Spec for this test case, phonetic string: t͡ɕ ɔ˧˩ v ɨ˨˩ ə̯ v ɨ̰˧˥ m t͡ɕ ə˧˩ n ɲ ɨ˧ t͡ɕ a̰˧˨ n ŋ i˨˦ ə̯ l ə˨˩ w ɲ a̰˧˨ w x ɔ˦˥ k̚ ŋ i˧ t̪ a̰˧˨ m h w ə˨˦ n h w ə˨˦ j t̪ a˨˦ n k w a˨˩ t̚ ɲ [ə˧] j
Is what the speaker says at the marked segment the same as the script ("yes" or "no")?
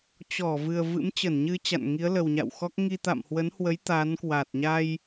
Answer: no